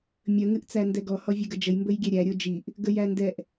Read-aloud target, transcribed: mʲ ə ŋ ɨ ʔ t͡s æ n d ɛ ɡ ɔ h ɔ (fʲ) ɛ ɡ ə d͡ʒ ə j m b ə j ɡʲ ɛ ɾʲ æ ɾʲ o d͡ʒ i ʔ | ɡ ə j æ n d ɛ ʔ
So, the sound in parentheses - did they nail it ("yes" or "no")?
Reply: no